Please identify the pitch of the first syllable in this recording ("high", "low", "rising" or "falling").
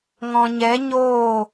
low